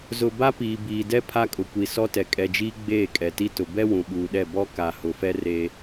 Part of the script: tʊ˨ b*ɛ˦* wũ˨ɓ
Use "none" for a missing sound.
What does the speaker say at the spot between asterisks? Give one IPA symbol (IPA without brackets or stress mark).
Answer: ɛ˦